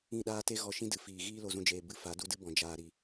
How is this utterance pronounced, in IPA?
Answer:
ĩ˦˨ɗaː˦ te˦ ɣɔ˧ʃĩ˦dɨ˨ fiː˨ɣiː˦ lo˧zũ˧d͡ʒeː˨ bɨ˦ fa˨˦du˦dɨ˦bɔ̃˨ d͡ʒaː˨ɾi˨

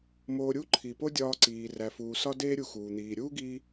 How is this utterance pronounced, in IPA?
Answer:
moː˧ ɾʲu˥ǃʰi˩po˥ dʲɒː˧ǀiː˩ ræ˩fuː˩ sɒ˥deː˥ɾʲu˧xuː˩ n̪iː˩ ɾʲuː˥ɡi˧

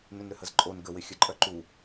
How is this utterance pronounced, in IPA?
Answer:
nʏnɾʏhəzǃʼon ɡə wɪxʲəǃʼœ ǃu

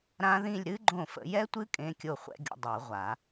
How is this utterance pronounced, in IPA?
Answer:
ɾã˦˥ðĩ˥˧lʲ ɾɨ˦˥ ɡ͡ǃõ˥˩ fə̰˨˩˦ jɛ˦˥tʷɨ˦˥ kʼẽ˧˥˧kʲo˥˩χʷɛ̰˦˥ ɡʲə̰˦˥ dˤo˨˩˦ʁʷa˨˩˦

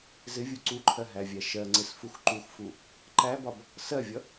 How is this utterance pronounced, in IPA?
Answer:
zɪvʲu ǀuǃʰɜɦævʲæ ʃɜŋ͡ǀɪsfux ǃuxfu | ǃæbɒb | sɜvʲʌ

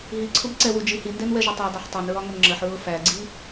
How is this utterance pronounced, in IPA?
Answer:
ɦi ǀʰʊbǀɛwu d͡ʒihindɛnwɛ ʒʊtˤædˤɛħ tˤɛnɹɒŋʊn ŋ͡ǁəħɹʊ fæɡ͡ǀi

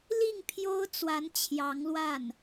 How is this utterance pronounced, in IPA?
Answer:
li˥˩ŋ pʰjo˥ʊ̯t͡swa˧˥n t͡ɕʰjɑ˧˥ŋlwa˥˩n

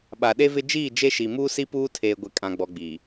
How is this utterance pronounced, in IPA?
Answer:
ɓa˨ɗe˦vɪ˦ d͡ʒiː˦˨d͡ʒe˦ʃi˨ muː˦si˦puː˦ tʰeː˨ɡʷɪ˨ kʼã˨ɡ͡bɔ˨ ɡ͡biː˨

